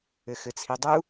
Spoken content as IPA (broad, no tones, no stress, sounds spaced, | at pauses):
ɘ x ɘ t͡sʰ i dˤ u